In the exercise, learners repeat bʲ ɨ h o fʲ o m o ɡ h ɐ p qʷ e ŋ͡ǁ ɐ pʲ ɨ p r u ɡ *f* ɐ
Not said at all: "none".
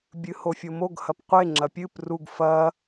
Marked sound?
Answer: f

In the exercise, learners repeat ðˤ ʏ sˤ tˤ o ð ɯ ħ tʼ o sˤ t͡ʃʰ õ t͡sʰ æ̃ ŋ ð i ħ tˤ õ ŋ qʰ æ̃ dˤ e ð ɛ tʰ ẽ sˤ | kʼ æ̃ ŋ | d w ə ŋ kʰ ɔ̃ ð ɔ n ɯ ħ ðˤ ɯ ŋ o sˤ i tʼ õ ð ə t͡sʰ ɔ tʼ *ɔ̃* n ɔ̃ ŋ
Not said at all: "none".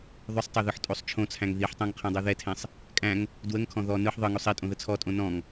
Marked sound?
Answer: õ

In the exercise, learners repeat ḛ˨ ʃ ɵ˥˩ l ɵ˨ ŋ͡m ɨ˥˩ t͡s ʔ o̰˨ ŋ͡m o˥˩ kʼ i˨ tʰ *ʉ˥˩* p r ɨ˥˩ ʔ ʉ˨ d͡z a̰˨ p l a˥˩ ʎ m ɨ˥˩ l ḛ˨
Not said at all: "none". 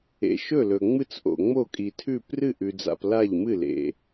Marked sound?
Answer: ʉ˥˩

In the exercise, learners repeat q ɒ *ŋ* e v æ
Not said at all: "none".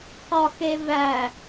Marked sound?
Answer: x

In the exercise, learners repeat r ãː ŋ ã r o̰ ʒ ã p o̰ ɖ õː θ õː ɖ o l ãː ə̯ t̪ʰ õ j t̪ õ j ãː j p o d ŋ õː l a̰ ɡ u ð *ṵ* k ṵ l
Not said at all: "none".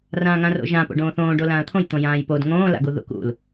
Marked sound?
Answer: ṵ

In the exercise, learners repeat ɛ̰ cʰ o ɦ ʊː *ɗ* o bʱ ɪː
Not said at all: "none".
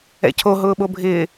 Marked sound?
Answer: ɓ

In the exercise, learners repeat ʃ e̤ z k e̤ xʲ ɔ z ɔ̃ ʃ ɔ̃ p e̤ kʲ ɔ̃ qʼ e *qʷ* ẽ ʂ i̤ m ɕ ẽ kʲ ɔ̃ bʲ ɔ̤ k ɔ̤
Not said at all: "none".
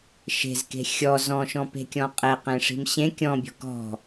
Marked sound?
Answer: q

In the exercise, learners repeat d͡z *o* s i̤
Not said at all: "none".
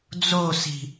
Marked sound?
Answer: o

